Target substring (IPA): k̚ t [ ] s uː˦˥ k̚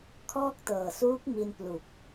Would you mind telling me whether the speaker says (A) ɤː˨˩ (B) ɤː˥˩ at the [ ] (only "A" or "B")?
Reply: A